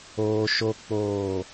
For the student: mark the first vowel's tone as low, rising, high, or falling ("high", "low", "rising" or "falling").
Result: high